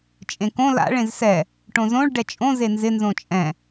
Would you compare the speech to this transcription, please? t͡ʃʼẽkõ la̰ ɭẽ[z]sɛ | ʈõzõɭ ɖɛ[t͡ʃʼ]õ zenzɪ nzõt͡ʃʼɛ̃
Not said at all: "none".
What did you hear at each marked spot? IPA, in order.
z, t͡ʃʼ

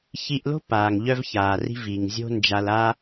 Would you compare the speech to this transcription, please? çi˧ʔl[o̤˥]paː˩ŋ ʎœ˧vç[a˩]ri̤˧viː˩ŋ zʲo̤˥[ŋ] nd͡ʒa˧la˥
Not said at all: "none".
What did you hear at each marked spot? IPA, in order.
o̤˥, aː˩, none

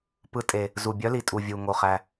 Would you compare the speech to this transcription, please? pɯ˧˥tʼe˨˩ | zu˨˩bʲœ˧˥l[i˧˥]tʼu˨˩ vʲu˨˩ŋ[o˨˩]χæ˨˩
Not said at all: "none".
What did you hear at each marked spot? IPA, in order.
i˨˩, o˨˩

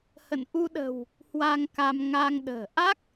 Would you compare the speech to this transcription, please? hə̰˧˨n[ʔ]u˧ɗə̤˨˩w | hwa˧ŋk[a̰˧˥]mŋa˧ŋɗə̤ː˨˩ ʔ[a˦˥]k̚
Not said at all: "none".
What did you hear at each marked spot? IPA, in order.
ʔ, a˧, a˦˥

